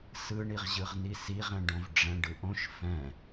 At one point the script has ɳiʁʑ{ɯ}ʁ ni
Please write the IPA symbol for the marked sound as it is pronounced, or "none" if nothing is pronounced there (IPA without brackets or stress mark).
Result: ɯ